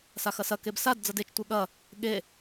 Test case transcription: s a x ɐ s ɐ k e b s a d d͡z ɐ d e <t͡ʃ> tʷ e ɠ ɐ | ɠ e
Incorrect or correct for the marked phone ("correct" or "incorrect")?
correct